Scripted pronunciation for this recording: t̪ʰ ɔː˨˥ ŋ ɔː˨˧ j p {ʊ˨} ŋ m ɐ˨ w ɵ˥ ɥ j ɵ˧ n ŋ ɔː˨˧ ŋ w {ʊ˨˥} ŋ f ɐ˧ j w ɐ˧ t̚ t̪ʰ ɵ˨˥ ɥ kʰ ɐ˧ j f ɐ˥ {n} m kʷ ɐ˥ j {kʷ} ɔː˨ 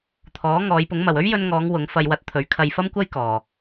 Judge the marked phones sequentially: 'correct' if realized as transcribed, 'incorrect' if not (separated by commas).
incorrect, correct, incorrect, incorrect